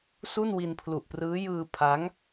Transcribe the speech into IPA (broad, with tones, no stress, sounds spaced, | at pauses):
s u˥˩ n w i˧ n pʰ l u˨˩ ʔ p r ɯː˦˥ j ɯː˧ pʰ a˦˥ ŋ